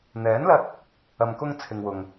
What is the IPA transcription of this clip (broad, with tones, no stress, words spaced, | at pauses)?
n̪ɛː˨˥nlɐ˧t̚ | ɐ˨mkʊ˧ŋ t͡sʰɪ˨ŋwʊ˨ŋ